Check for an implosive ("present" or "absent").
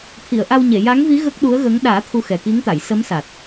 present